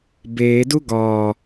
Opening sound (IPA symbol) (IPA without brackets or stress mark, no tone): b